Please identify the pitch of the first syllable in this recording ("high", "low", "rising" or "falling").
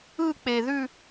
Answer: falling